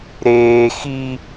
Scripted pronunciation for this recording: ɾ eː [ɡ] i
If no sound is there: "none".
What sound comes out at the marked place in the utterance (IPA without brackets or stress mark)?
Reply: x